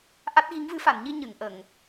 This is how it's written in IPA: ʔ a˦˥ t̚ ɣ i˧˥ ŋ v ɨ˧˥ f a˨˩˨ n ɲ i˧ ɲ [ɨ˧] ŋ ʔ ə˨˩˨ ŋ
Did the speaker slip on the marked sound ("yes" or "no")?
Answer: yes